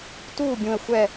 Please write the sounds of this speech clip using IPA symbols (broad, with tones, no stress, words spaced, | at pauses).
tuː˥˧bʲũ˧ə̯ xʷɛ˥˧